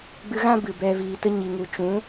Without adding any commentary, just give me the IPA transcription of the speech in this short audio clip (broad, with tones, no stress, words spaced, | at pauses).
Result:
ɡ͡bɨ˧ɣã˦ bɨ˨bɛ˧ viː˨tə˧ɲi˨ŋu˨ t͡ʃũ˨˦